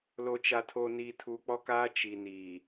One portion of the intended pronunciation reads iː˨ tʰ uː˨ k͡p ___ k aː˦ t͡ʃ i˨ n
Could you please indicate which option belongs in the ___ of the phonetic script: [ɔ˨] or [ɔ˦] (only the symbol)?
ɔ˦